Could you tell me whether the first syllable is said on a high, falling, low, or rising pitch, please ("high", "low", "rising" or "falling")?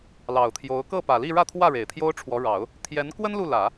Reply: low